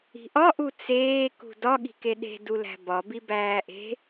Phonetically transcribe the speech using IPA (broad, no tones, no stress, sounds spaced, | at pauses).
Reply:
i̤ ʔ ɒ ʔ u t͡s eː k ṳ d ɒ ɠ i̤ k e ɗ e̤ d u l æ̤ b ɒ b i b æː ʔ e̤